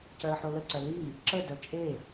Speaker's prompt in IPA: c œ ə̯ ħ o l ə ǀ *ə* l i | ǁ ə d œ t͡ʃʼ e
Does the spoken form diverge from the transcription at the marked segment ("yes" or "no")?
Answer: yes